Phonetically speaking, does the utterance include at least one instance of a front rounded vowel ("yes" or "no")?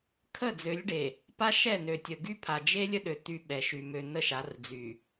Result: yes